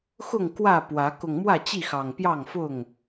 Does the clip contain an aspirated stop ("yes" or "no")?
no